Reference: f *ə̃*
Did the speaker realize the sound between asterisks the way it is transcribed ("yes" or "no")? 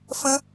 yes